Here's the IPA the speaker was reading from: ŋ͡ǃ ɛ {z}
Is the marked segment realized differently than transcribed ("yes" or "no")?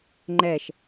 yes